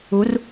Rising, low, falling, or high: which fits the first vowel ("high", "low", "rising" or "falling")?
rising